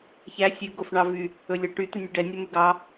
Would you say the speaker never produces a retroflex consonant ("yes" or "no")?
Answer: no